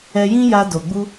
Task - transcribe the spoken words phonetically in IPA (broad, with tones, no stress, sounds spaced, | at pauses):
ɛ˧ j ĩ˦ j a˧ d o˨ ɡ͡b u˧